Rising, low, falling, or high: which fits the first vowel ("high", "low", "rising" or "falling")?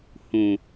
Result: low